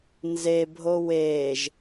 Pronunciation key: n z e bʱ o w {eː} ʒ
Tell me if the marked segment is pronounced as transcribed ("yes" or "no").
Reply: yes